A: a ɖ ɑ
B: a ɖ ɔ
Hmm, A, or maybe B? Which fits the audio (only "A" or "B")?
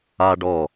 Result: B